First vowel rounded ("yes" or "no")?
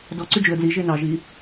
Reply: yes